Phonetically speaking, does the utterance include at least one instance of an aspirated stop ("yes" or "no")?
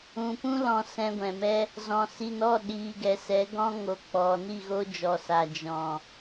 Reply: no